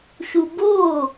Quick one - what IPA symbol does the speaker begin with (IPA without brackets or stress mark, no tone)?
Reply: ʃ